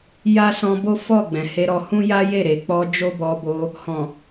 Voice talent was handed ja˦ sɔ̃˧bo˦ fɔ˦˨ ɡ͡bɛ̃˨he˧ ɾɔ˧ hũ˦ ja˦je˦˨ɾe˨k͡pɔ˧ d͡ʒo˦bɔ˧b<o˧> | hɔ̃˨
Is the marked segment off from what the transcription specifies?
no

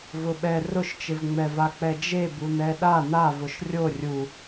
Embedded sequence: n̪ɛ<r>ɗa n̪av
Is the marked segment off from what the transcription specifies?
yes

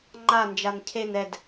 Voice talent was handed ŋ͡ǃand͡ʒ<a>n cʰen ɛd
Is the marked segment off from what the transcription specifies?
no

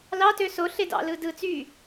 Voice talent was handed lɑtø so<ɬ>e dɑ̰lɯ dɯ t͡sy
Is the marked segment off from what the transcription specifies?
no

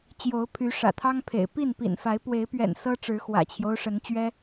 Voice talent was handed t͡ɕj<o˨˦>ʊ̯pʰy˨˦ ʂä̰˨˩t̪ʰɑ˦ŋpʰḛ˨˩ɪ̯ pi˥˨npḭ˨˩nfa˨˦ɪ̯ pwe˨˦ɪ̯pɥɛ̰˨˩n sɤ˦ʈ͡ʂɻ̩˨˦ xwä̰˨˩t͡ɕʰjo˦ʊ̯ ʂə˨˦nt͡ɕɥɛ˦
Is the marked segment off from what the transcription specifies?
no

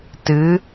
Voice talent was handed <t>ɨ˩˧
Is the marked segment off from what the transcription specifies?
no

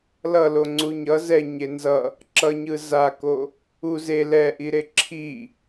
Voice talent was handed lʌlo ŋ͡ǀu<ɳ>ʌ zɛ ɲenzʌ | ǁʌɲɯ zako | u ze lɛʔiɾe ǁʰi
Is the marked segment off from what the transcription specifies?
yes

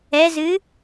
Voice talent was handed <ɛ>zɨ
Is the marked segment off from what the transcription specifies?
no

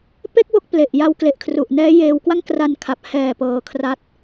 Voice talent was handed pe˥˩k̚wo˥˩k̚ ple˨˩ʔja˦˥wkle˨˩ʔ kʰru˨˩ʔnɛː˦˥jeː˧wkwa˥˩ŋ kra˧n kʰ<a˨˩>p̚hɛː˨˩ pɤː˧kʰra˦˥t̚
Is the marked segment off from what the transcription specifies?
no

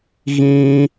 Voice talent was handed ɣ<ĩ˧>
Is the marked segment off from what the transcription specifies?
no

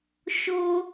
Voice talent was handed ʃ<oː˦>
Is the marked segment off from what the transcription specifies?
no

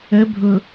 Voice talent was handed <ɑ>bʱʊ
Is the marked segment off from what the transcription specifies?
yes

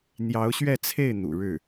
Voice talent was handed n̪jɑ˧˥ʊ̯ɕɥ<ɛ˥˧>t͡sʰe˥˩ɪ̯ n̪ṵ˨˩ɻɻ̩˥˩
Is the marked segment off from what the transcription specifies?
no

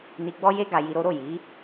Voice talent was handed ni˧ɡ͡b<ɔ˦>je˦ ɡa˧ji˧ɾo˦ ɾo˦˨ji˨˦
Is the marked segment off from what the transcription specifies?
no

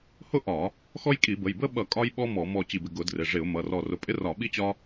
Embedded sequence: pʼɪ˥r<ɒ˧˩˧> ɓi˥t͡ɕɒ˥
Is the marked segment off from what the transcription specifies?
no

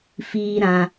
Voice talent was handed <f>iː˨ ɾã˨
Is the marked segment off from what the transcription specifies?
no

